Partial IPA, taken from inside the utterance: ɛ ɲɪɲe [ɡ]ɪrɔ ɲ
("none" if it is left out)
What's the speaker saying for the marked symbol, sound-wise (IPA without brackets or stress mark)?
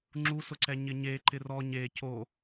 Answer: ǃ